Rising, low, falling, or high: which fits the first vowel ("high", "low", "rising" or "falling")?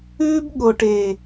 high